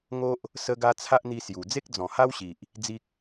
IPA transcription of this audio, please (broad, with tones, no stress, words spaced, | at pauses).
ŋo˦ʔ | sə˦ɡa˦ t͡sʰa˦ʔn̪i˧ sju˨˩ d͡ze˦k̚d͡zɔ̃˨˩ha˦wɕi˨ʔ | d͡zi˦k̚